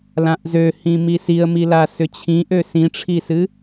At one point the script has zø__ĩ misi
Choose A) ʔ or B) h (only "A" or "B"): B